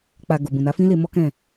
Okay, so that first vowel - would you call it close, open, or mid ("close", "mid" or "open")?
open